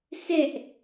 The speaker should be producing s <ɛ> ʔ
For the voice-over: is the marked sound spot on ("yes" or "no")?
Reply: yes